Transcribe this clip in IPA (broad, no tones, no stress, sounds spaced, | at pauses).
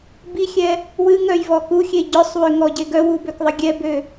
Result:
b i xʲ ɛ | w ɨ ŋ œ j v ɔ k u xʲ e ɟ œ sˤ w ø ŋ ɔ ɟ e ɡ œ w u b ø k ðˤ ə ɡʲ ɛ b ø